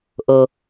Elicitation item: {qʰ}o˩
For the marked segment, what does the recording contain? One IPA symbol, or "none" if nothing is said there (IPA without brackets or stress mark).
ʔ